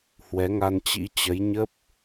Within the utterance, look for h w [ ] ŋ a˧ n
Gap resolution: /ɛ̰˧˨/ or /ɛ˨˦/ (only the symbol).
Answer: ɛ˨˦